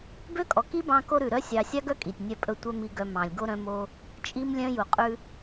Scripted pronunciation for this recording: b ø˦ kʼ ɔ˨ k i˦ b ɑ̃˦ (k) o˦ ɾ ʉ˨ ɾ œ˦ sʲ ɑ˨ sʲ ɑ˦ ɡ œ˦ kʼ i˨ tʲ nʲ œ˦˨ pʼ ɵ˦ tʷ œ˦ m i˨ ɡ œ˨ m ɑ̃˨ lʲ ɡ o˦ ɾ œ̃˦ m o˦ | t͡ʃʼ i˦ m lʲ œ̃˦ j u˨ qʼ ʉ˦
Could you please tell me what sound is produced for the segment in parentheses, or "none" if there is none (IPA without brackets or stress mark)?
k